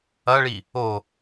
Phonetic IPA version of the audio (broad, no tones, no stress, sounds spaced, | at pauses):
ɐ ɭ i | o